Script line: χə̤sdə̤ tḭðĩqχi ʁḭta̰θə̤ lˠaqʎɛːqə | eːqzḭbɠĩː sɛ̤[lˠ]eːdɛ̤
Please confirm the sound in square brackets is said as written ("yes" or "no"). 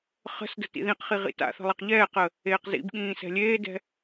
no